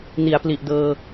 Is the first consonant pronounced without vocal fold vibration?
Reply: no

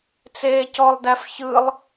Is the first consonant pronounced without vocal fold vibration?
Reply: yes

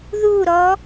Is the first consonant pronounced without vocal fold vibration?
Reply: no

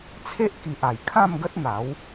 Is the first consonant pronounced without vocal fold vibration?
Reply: yes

